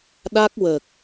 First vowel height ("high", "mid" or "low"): low